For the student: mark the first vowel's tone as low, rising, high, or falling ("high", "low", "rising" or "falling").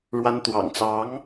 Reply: high